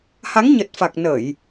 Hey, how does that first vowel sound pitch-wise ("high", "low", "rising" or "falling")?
rising